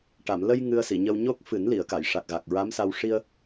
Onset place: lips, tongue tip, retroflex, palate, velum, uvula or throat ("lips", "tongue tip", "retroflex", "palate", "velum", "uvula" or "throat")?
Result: retroflex